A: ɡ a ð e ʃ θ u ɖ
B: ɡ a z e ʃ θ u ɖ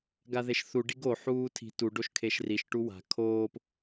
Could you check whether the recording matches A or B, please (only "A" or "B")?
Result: A